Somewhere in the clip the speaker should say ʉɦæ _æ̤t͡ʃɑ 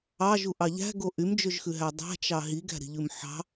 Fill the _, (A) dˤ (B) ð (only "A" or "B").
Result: A